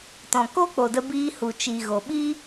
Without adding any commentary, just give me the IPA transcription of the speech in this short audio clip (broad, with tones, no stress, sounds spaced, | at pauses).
t ɔ̃˨ k o˦ k͡p o˨ d ə˧ b iː˧ h u˨ t͡ʃ i˨ ɣ o˨ ɓ i˦